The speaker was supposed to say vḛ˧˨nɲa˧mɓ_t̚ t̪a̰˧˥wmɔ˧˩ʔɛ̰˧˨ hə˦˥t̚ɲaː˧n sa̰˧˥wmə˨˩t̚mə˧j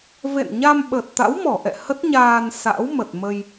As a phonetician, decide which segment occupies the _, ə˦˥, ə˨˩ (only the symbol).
ə˨˩